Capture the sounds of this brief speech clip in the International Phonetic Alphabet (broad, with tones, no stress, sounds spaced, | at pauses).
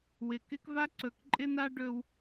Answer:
w ɪ˨ k ɪ˦ k v a˦ ǀ ɵ˨ k ǃʼ ɪ˦ n a˦ ɖ ɵ˦ w